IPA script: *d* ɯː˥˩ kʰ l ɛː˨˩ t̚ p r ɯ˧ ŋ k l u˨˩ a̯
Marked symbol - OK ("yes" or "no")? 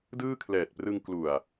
yes